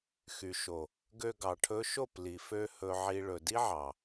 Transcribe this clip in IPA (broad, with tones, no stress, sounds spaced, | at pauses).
x y˨ ʃ o˨ | ɡ ø˧ ɡ ɑ˨ ʈʰ ɵ˧ ʃ o˦˨ p l i˨ f ø˧ h ɵ˨ ʕ i˨ ɭ ɵ˨ d i˦ ʕ ɑ˨